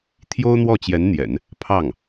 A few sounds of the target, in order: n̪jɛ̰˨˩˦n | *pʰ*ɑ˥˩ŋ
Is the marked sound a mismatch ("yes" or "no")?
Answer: no